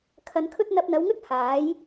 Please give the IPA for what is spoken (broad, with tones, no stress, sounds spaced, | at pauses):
kʰ ɐ˧ n kʰ ɵ˥ t̚ n̪ ɐ˧ p̚ n̪ ɐ˨˧ w ŋ ɵ˥ t̚ h aː˨˥ j